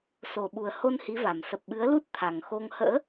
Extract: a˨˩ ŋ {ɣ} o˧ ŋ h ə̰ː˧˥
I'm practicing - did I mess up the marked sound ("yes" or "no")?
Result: yes